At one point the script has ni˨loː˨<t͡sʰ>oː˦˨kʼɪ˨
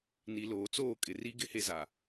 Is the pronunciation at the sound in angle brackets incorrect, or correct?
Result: incorrect